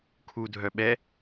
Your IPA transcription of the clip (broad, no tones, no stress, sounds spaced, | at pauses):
kʰ u dʱ œ ɓ ɛ